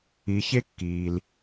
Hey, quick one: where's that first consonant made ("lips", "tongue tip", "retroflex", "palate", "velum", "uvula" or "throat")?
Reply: palate